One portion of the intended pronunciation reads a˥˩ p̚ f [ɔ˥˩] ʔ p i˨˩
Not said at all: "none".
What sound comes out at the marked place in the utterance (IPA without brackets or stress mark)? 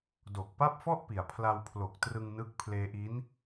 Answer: ɔ˥˩